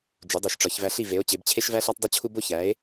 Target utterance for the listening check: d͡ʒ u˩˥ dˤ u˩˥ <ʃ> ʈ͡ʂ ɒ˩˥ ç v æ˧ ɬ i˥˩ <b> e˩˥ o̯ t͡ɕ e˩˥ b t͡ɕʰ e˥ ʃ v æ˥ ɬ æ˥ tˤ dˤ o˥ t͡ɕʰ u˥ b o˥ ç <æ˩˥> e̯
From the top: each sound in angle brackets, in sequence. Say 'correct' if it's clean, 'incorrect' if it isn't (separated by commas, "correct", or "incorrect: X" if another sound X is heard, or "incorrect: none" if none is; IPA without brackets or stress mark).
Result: correct, incorrect: v, correct